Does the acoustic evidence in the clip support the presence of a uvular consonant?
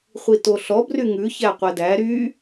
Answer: yes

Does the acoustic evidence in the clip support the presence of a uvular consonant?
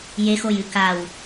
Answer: no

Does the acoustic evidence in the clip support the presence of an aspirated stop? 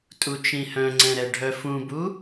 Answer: no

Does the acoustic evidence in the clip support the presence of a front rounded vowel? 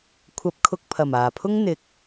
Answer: no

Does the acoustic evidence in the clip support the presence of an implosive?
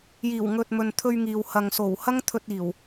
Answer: no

